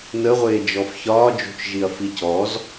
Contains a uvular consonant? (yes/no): yes